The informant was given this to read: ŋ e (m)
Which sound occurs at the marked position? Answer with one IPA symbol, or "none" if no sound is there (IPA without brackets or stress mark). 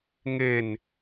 n